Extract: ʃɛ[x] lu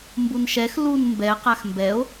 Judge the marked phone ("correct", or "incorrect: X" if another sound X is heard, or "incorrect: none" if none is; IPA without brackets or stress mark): correct